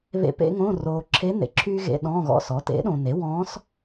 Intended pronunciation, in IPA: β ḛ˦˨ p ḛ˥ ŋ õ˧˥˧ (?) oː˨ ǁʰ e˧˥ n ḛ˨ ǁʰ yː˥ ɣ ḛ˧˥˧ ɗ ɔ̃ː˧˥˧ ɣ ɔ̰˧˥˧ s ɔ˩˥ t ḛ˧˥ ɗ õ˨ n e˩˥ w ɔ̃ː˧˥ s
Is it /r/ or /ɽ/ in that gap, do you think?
r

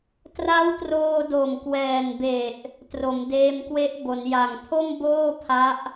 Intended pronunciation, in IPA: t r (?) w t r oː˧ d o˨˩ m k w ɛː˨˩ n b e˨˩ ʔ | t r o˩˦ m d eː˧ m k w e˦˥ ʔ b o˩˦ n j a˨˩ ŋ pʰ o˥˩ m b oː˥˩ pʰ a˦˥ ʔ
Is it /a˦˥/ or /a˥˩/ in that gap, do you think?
a˦˥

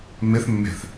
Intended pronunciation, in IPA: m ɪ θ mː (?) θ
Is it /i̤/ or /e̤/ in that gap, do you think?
e̤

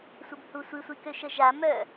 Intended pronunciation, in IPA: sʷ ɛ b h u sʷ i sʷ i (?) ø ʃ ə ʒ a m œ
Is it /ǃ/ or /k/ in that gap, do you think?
k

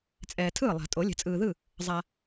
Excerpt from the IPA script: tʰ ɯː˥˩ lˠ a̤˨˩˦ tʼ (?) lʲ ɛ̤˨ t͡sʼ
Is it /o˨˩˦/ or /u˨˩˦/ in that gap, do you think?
o˨˩˦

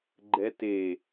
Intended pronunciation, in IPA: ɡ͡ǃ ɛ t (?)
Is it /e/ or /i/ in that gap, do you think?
e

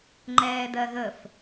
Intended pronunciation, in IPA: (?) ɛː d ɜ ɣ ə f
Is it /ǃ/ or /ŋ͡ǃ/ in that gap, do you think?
ŋ͡ǃ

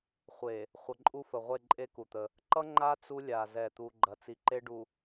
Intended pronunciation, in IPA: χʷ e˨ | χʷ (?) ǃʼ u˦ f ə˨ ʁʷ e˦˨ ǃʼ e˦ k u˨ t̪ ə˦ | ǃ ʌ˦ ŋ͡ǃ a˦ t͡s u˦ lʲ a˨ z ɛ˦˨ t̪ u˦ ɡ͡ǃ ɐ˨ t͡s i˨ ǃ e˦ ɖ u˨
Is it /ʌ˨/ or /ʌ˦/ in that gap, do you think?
ʌ˨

